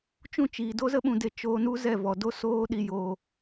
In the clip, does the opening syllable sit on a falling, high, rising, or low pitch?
falling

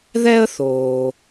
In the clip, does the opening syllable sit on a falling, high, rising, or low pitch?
high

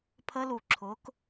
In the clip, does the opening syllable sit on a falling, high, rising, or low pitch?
rising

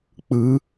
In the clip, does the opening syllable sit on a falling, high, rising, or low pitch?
rising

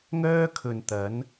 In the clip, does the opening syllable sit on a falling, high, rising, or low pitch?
high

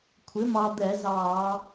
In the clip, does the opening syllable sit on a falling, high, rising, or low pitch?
rising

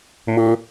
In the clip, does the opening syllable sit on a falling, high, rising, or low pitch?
low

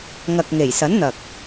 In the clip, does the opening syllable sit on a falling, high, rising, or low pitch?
low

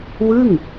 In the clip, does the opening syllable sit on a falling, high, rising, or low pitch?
falling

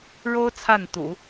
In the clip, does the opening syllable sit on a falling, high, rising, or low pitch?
high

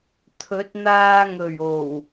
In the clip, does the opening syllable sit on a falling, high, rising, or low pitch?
rising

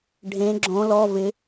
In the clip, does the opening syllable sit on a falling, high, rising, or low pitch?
rising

